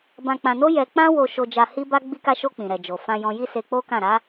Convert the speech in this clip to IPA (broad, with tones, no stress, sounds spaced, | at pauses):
b ã˧ k͡p ã˧ n o˦ j ɛ˧ k͡p ã˦ w o˧ ʃ o˧ d͡ʒ a˧ h i˦ b a˦ ɡ͡b i˧ k a˧ ʃ o˧ k͡p ĩ˨ ɾ ɛ˨ d͡ʒ o˨ f ã˧ j ɔ̃˧ j i˦ s e˧ k͡p o˦ k ã˦˨ ɾ a˨˦